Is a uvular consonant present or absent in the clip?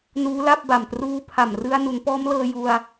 absent